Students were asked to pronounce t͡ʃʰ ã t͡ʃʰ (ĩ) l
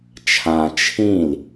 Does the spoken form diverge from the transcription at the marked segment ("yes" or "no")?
no